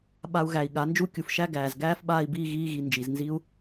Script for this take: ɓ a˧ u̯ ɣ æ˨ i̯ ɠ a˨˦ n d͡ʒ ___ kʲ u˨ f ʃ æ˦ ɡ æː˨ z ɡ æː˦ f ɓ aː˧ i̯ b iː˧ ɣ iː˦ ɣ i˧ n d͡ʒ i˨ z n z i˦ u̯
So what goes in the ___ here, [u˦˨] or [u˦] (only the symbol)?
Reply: u˦